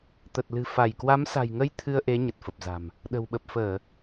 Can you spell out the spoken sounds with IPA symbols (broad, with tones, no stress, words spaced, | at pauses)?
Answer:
t̪ə˨˩t̚lɨ̤˨˩ fa˧˩j kwa˨˦msa̤˨˩jŋə˧j t̪ʰɨ˧ə̯ʔe˨˦ ɲə˨˩t̚fə˨˩p̚za̤˨˩m | ɗə̤˨˩wɓə˨˩p̚fəː˧˩˨